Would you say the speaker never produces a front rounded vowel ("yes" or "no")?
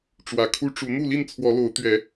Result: yes